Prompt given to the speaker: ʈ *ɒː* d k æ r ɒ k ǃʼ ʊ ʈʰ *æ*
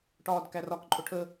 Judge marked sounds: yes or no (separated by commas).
yes, no